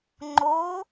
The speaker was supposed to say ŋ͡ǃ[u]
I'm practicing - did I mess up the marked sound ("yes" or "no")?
yes